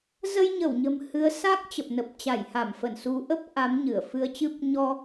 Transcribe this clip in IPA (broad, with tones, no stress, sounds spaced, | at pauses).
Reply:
z ə˧ j ɲ ə˧˩ w ɲ ə̤˨˩ m h ɨ˨˦ ə̯ s a˦˥ k̚ t͡ɕ ə˨˩ p̚ n ə˨˩ p̚ t͡ɕ a˧˩ j h a˧˩ m f ə˧˩ n s u˨˦ ʔ ə˦˥ p̚ ʔ a˨˦ m ɲ ɨ˧˩ ə̯ f ɨ˧ ə̯ t͡ɕ ɨ˦˥ p̚ ɲ ɔ˧